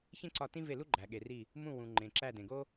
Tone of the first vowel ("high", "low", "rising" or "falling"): high